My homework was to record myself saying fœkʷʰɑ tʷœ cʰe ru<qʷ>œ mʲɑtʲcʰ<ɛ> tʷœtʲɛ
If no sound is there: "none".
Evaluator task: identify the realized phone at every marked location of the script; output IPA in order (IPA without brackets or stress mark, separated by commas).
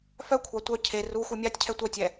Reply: xʷ, ɛ